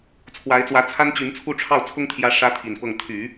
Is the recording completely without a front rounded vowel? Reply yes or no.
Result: no